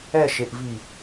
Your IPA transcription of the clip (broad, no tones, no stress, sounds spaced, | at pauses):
ɛ ʃ e ʔ v i